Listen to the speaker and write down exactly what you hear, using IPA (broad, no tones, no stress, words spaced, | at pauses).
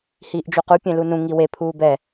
hiːʔd͡ʒuqu pʲẽlunũ ŋiwe pʰuːbɛ